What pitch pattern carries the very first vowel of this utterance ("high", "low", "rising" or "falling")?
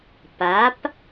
rising